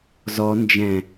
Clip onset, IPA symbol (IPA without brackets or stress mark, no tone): z